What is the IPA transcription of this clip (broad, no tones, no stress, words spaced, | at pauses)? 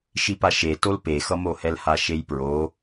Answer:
ʃipaʃetol pexʌmohɛl haʃejpɹo